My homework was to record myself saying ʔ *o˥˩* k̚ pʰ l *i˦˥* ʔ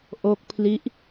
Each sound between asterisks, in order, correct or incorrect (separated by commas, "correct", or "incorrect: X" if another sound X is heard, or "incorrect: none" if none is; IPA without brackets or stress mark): incorrect: o˦˥, correct